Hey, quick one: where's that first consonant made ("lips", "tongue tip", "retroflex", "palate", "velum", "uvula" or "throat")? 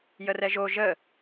palate